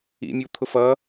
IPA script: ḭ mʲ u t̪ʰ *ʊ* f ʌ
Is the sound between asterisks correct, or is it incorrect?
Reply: correct